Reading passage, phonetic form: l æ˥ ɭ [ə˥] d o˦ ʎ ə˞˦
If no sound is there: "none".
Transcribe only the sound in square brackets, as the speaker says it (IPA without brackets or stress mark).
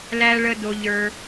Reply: ə˥